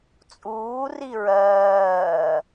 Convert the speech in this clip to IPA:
t͡sʼ uː r i ɹ ɜː

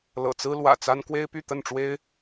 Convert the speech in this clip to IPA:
l ɤ̰˨˩ t͡s ɹ̩˦ l w ä̰˨˩ t͡s a˦ n k w e˦ ɪ̯ p y˥˨ t̪ ə˥˨ n ʈ͡ʂ w e˦ ɪ̯

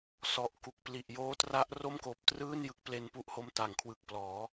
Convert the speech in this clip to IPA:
s ɔ˨˩ ʔ k u˨˩ k̚ p l i˨˩ ʔ j oː˦˥ t r a˦˥ ʔ r o˥˩ m k oː˨˩ p̚ t r ɯː˥˩ n j ɯ˦˥ k̚ p l e˧ n p u˦˥ ʔ h o˦˥ m t a˨˩ ŋ kʰ w ɯ˨˩ k̚ p l ɔː˩˦

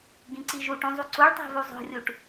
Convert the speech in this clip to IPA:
ɡ ĩ ǀ i ʒ u ʈ ũ zˤ u ǀ u ɭ tˤ æ̤ v u zˤ o̤ rʲ u ʈ

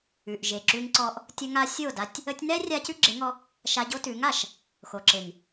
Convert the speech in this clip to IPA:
ʉ˨ ʔ ʒ e˨ ǁ ʉ˧ ŋ ǀ ɔ˧ ʔ | tʲ ə˧ ŋ a˧ sʲ o˦˨ d a˧ tʲ | ə˧ tʲ n ɛ˦ rʲ a˧ c ʉ˦ ɡ͡ǁ e˨˦ ŋ ɔ˧ | ʃ a˧ ɟ o˦ t ʉ˨˦ ŋ a˨ ʃ | x o˨ ǁ e˨ ŋ

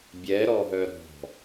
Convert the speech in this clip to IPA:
bʲ ɛ ɾ ɔ ɦ œ ɾ ɔ̤

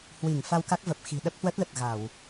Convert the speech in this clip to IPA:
h w i˧˩ ŋ f a˧ w k a˦˥ k̚ v ə˨˩ p̚ x i̤˨˩ ɗ ə˦˥ p̚ h w ə˦˥ t̚ l ə˨˩ t̚ ɣ a˧˩˨ w

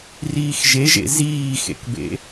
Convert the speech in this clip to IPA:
r iː x ʒ e ʒ ḛ z iː x ḛ k b ḛ

